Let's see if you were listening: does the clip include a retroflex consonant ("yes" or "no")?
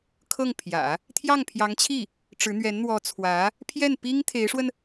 yes